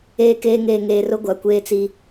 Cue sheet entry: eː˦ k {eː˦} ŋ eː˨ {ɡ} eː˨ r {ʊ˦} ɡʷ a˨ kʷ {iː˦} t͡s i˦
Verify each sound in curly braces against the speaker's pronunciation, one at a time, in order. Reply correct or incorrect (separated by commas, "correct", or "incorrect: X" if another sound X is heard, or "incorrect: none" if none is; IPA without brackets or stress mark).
correct, incorrect: ŋ, correct, incorrect: eː˦